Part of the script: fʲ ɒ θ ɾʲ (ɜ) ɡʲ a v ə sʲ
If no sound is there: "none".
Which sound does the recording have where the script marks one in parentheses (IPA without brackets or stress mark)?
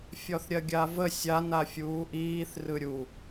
ɜ